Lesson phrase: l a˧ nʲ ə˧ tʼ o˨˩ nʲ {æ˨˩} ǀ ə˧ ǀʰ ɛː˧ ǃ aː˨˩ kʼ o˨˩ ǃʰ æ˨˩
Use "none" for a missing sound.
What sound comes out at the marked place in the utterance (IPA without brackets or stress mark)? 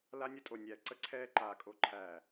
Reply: æ˨˩